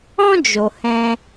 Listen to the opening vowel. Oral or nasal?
nasal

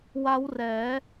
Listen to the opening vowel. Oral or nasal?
oral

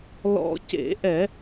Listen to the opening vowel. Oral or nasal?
oral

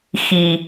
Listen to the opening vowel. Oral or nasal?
oral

